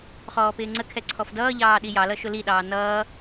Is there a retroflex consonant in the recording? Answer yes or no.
no